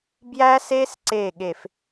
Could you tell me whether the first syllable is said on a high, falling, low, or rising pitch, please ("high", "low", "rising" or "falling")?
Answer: high